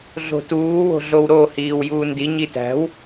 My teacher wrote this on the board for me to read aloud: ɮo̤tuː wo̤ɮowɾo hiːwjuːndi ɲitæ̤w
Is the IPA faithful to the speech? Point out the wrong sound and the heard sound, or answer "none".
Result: none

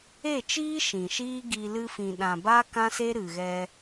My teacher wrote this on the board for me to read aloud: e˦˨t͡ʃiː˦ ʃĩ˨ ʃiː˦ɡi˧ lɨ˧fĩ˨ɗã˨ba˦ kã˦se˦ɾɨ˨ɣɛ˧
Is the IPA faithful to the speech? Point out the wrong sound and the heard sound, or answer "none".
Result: none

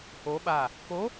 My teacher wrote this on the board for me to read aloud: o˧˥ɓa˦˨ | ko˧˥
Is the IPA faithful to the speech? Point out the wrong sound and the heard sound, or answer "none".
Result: none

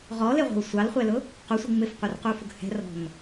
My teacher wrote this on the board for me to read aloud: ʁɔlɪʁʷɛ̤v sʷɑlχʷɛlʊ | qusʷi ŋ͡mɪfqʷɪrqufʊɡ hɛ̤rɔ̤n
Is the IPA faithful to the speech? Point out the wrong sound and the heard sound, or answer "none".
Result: v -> w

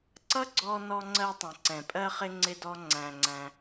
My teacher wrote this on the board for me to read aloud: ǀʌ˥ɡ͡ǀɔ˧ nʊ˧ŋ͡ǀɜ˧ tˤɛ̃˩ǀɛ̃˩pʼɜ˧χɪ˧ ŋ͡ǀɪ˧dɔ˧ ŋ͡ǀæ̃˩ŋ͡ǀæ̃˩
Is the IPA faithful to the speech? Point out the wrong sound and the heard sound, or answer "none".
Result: ʊ˧ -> ɔ˧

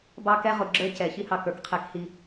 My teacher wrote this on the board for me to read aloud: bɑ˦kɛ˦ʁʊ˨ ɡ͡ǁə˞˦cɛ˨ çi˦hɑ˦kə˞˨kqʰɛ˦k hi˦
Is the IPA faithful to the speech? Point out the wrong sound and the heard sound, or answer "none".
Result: none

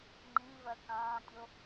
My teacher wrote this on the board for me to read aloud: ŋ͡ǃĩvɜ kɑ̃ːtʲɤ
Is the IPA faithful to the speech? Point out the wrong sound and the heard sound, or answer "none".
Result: ɤ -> o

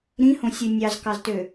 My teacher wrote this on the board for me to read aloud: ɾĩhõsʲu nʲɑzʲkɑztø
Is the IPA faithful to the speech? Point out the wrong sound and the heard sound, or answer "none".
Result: zʲ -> z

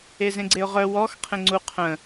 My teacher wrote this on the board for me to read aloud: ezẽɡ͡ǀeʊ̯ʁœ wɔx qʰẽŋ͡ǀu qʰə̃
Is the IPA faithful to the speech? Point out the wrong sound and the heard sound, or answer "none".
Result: none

